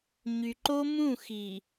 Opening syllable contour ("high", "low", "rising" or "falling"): low